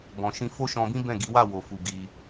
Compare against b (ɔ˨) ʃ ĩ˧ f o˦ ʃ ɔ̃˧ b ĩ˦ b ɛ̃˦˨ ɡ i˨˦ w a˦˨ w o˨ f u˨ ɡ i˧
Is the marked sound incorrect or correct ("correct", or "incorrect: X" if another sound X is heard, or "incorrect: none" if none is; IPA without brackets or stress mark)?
incorrect: ɔ̃˨